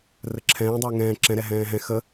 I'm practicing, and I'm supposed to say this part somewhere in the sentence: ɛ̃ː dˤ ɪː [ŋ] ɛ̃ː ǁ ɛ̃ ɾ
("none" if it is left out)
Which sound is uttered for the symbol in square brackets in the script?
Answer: ŋ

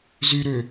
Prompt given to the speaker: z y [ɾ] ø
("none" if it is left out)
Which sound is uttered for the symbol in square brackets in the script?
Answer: ɾ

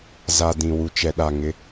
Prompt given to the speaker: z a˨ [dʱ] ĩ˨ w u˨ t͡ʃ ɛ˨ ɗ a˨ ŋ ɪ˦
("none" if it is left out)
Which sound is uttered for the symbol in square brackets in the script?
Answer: d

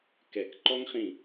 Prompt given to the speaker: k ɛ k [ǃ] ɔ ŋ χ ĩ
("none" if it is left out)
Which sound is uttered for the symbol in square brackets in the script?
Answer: ǃ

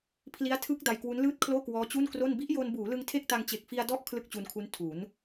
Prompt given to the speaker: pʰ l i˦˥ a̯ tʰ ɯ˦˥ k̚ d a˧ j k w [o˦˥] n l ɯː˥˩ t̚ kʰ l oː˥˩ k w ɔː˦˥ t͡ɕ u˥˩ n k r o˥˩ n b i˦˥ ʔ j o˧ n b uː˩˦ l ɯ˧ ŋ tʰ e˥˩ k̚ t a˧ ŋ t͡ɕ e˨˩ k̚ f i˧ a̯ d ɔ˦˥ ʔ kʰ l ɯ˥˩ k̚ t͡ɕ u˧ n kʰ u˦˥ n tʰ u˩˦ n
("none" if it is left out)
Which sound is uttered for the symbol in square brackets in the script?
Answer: u˦˥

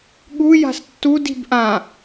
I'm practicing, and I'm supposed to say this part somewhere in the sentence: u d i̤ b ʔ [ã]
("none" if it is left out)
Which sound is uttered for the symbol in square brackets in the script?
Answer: ã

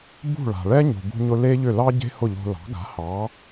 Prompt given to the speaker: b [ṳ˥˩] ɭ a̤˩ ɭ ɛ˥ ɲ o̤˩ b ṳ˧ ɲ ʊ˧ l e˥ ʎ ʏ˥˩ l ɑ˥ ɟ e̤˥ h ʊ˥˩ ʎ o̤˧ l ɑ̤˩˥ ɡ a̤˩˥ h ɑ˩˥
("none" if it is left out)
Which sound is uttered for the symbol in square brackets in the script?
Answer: ṳ˥˩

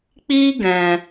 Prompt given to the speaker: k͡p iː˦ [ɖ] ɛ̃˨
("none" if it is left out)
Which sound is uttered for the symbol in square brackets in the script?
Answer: ɡ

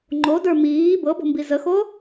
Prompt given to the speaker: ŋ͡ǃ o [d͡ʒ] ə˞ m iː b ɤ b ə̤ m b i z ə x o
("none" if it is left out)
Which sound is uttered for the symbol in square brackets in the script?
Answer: d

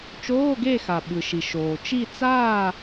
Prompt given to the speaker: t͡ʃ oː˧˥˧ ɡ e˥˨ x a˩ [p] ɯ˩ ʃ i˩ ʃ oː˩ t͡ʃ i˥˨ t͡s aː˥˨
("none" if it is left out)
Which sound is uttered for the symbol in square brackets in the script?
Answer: ɓ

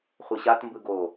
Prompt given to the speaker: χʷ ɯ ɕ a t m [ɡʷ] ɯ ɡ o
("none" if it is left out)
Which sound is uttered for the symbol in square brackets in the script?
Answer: b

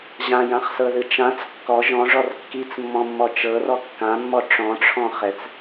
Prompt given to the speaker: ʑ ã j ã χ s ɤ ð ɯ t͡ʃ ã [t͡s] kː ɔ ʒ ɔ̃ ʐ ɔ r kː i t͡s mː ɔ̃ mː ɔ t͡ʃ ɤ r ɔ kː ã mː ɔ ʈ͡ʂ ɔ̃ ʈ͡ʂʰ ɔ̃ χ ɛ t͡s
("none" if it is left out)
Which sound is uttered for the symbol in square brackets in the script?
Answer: t͡s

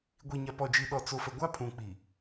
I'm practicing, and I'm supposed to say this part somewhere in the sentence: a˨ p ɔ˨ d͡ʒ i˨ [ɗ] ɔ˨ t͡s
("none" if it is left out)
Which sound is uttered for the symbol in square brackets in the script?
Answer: ɗ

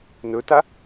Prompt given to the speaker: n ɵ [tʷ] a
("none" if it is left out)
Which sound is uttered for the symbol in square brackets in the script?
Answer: t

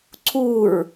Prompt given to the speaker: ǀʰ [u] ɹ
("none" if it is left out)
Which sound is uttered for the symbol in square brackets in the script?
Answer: u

